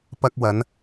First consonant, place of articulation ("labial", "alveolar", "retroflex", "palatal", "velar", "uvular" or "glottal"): labial